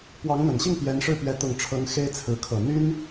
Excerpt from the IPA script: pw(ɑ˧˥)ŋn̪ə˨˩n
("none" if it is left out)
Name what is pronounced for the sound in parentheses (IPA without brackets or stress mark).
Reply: ɑ˧˥